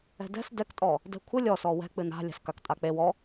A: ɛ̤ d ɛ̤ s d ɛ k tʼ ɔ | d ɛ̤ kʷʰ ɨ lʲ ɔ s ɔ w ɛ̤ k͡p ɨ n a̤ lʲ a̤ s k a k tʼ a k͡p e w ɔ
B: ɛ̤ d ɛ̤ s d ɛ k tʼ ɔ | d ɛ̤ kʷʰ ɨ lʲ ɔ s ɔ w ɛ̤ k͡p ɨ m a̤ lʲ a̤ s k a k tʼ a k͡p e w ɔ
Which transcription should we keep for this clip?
A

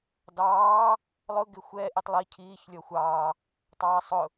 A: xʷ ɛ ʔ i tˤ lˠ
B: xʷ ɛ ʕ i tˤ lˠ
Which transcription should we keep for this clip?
A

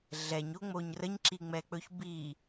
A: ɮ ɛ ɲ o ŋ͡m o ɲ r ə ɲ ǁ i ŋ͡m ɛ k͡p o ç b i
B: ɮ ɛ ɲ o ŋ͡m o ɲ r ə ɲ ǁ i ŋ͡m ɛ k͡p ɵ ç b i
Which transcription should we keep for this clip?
B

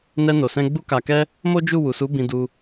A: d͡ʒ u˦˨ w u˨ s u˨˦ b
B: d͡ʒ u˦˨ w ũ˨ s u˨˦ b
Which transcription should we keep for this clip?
A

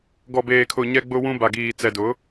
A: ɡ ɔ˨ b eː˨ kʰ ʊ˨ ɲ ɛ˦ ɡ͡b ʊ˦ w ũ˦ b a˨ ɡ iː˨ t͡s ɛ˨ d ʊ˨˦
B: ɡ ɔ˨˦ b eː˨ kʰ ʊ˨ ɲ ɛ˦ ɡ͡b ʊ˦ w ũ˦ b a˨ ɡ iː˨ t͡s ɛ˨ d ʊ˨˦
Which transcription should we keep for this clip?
A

